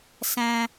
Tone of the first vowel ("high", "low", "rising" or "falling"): high